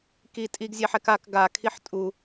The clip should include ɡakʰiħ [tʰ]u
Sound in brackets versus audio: incorrect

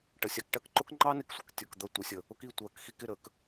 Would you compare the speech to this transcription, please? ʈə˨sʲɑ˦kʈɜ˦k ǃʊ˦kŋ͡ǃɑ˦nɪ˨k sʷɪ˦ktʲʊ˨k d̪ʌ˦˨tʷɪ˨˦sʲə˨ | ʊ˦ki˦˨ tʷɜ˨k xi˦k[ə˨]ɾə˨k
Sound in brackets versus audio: incorrect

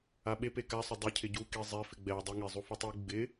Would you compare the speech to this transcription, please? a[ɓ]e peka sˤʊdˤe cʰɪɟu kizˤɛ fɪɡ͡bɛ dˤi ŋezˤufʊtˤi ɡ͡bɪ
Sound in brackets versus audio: correct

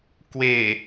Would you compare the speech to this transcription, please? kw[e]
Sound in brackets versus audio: correct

